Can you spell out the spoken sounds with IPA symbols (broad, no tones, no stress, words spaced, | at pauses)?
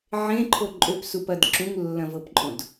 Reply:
ʕẽǃʰo ǃʼøpsupɐd ǁũŋlːɐ̃vɤpǃʼõd